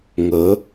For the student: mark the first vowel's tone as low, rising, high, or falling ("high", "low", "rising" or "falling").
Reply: rising